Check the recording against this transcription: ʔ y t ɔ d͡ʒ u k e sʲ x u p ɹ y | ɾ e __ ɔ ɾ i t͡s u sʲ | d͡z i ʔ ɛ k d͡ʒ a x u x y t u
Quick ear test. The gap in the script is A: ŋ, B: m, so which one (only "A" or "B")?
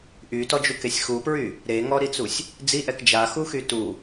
A